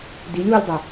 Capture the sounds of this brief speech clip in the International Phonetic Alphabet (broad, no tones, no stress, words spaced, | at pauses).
dilʲwulʲdˤɤ